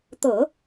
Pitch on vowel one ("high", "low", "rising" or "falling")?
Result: low